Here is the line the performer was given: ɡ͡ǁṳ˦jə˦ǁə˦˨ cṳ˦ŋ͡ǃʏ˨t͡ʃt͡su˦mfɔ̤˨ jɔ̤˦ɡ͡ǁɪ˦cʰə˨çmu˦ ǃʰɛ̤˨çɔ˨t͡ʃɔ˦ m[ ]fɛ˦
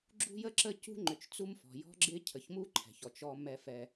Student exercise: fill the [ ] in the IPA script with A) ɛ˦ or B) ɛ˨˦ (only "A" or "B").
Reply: A